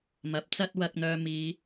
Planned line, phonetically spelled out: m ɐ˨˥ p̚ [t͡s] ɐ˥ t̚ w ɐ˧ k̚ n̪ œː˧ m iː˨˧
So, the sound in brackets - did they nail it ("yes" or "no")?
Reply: yes